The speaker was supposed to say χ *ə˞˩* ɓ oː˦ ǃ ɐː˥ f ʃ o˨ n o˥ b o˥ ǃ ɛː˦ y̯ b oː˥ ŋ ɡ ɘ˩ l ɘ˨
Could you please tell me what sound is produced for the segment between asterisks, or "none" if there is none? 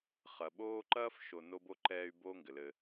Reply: ɐ˩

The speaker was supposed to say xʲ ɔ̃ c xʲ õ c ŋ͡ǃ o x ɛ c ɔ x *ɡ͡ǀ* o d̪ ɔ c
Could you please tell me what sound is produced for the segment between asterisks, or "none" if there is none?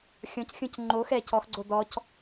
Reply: ɡ͡ǀ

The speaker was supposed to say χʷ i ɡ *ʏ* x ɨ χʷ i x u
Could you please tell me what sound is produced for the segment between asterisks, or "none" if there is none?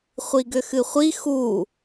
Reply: ʏ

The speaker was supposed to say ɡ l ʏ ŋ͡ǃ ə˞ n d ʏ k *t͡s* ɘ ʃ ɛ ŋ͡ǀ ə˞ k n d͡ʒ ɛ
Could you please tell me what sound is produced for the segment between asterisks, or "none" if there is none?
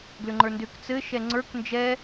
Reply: t͡s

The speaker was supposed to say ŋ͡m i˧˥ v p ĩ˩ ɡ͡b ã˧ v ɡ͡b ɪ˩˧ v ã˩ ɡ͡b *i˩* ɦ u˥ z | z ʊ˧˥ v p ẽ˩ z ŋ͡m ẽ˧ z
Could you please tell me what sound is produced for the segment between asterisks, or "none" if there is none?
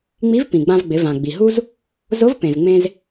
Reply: i˩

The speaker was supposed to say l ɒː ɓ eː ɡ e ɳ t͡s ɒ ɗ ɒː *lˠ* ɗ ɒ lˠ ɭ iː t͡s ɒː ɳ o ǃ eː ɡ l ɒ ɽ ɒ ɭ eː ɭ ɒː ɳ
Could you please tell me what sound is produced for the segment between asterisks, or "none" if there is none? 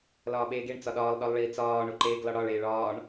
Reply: lˠ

